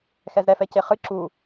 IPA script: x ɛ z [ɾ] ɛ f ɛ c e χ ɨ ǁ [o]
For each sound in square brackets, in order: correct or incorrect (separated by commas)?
correct, incorrect